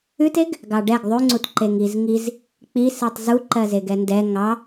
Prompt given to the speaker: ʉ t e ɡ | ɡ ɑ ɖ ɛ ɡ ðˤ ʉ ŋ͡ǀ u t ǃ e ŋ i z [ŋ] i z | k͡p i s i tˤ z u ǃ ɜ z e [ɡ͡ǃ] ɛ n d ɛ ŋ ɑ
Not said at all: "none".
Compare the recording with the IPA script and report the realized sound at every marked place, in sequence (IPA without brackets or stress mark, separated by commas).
ŋ, ɡ